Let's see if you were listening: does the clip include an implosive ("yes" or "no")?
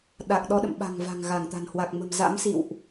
yes